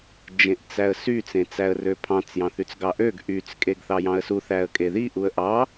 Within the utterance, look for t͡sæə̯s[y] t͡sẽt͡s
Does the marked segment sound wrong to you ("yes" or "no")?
no